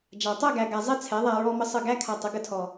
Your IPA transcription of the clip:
d͡ʒa˨ tˤɛ˦˨ɡæ˨ɡa˨ zˤe˦t͡sʰɛ˨˦ðˤæ˧ ɹɔ˦mə˦sˤə˦˨ ɡæ˦kʰa˧tˤə˨˦ ɡə˧tʰɔ˨

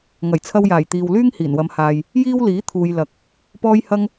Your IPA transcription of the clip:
ŋɐ˨˩jt͡sʰɐ˧wjaː˨˩j t̪iː˨wlyː˥ŋ hiː˨˩nwɐ˨˧m haː˨j | jiː˥wliː˨˥ t̪ʰuː˨jlɐ˨k̚ | pɔː˥jhɐ˥ŋ

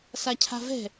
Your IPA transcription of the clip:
sacʰa̤vɛ̤

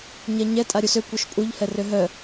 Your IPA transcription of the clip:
ɲɛɲɛ tʼaɾʲusø kʷœʃpʼuʎ hɛrøɦœ

